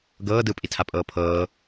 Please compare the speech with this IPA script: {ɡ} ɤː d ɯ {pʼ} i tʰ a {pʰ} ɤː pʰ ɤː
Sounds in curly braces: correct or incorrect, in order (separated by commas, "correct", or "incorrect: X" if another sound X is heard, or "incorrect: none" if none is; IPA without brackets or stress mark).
correct, correct, incorrect: pʼ